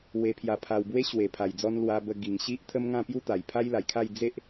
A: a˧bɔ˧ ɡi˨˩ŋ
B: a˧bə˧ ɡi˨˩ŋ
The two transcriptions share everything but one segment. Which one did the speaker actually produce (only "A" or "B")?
B